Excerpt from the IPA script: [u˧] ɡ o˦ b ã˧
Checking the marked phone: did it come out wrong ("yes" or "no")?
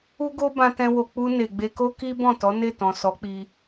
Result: yes